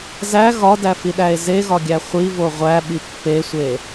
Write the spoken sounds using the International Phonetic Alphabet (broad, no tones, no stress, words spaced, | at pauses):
zæ ɣɒdæfiɗæe̯ zeɣɒɡʲæ χʷivo ʁʷæɓi pːesʷe